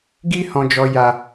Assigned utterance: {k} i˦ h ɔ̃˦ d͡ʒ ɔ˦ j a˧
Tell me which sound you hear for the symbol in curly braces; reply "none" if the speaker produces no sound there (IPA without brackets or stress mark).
ɡ